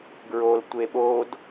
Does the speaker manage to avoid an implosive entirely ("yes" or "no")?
no